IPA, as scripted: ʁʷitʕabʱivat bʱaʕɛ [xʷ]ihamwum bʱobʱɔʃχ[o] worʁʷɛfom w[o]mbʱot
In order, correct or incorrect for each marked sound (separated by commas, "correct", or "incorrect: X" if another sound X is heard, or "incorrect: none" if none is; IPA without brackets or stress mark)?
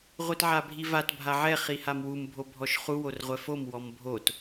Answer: incorrect: χ, incorrect: u, incorrect: ɔ